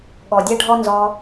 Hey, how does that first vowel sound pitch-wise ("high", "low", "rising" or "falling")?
low